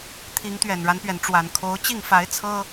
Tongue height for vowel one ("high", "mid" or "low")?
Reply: high